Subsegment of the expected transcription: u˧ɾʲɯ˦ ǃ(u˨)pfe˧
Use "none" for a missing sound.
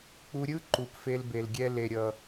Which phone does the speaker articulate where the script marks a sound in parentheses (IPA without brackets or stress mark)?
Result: u˨